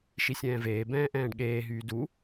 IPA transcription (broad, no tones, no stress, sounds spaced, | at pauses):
ʃ i sʲ ɛ̃ː v eː b ɛ̃ː ʔ ɛ̃ː ɖ ɠ eː ɦ yː d u